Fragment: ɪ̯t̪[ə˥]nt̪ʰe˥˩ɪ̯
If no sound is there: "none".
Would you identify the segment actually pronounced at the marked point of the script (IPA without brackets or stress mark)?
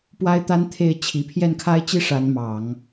a˥